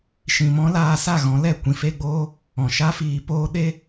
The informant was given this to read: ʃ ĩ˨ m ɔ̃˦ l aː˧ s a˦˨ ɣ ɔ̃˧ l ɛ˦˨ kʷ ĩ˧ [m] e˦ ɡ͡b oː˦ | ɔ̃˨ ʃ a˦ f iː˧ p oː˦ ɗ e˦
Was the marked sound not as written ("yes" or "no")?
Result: yes